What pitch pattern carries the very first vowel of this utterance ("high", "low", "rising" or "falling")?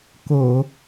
low